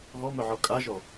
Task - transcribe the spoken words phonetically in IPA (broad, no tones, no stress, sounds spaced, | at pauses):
ɣ ɔ m œ ʕ ɔ kʼ a ʒ ɔ